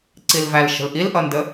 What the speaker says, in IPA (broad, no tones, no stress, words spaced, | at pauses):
ǀilvælʃə̤l ʔilʔʌndə